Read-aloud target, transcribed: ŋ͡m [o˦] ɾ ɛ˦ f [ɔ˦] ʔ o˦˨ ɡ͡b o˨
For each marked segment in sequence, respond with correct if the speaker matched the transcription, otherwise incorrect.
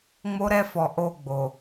correct, incorrect: ɔ˨

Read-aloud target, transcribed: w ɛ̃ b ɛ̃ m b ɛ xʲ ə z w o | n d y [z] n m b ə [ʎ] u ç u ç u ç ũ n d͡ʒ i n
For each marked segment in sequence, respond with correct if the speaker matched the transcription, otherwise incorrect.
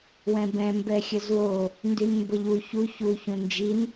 incorrect: none, correct

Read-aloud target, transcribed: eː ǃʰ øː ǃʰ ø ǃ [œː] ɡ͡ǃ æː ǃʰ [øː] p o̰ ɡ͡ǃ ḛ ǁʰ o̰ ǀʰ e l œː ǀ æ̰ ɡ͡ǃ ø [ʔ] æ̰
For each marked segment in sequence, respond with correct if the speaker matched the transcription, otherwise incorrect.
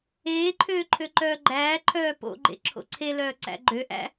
correct, incorrect: œː, correct

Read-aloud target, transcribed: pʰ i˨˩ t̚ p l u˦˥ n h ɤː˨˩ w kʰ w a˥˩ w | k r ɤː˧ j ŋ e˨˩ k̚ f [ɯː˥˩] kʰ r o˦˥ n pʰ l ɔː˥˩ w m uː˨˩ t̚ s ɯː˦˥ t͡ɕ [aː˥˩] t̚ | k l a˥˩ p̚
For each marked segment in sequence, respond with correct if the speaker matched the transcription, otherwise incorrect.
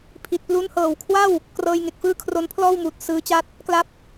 correct, incorrect: a˥˩

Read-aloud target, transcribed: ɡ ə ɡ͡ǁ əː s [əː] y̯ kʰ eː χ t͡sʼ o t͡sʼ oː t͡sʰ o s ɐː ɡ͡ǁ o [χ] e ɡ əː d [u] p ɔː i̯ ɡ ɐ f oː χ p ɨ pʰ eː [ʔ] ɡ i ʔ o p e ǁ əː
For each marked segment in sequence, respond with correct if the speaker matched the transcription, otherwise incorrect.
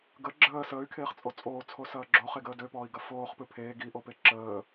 correct, correct, incorrect: ø, incorrect: none

